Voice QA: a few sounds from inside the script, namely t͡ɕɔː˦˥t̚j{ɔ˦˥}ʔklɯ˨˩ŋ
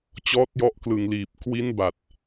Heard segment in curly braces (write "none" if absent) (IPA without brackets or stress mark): ɔ˦˥